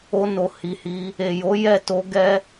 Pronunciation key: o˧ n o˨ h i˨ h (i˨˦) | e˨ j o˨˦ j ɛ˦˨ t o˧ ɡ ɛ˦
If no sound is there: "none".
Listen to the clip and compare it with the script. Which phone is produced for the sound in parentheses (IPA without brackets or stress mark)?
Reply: i˨˦